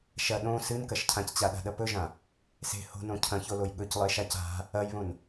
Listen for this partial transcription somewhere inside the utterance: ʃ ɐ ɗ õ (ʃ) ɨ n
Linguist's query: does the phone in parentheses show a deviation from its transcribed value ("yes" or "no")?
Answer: yes